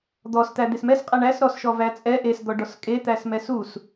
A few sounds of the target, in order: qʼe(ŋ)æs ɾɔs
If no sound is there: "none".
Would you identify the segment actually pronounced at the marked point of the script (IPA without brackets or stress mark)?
ɳ